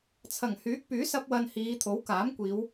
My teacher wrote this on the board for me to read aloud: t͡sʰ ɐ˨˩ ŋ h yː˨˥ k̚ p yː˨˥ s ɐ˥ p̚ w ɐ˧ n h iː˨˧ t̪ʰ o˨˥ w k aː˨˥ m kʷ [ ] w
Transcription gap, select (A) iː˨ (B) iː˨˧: B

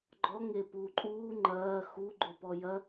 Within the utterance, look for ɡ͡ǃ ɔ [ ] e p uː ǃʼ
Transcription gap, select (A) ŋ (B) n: A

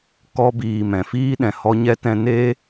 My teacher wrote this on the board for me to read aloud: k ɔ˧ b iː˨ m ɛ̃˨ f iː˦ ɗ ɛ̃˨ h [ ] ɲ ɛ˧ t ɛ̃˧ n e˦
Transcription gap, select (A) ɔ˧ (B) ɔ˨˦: A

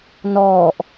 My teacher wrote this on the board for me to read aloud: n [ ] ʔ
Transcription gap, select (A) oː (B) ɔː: B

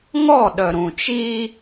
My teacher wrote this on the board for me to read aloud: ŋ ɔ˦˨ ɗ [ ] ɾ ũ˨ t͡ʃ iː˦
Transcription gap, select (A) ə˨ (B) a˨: A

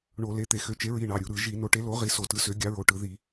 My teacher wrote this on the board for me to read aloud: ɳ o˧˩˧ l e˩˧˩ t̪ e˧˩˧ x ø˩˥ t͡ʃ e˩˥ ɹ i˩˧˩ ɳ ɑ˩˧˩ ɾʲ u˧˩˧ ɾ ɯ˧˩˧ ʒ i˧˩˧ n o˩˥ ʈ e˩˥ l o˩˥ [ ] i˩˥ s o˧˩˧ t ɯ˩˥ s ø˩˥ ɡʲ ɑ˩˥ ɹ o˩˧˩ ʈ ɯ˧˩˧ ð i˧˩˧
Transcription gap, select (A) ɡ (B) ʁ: B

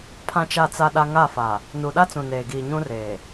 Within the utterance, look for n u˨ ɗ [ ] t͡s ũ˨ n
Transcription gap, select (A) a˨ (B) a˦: B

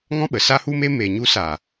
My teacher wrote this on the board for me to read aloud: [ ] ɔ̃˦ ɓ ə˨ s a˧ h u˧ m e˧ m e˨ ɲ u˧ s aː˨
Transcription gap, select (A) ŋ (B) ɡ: A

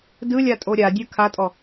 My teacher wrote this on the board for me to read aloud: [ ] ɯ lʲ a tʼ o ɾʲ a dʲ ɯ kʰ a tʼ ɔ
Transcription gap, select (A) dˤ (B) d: B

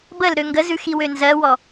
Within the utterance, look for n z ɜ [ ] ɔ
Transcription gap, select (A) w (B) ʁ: A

